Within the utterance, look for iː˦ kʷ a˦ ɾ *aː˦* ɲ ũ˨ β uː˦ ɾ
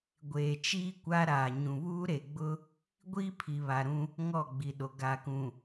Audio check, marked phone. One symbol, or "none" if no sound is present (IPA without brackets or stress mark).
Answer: aː˨